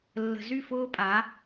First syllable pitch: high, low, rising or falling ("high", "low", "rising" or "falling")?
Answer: low